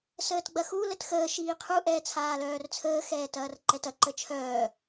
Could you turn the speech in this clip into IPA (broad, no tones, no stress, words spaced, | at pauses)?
səːtɡ͡bɐxu lətxəː ʃiːqʰu ʔɛːt͡sʰaːlœːrt͡sʰəː xɛːtɐːrǃɛtɐ ǃət͡ʃʰœː